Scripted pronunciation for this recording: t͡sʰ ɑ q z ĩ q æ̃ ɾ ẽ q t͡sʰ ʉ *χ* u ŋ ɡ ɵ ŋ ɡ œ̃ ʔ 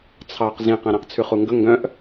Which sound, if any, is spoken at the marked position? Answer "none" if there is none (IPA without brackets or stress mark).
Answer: χ